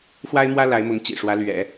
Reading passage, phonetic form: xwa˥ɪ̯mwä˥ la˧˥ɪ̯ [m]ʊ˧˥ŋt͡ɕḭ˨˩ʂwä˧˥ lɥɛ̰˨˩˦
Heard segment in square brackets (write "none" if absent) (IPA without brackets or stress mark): m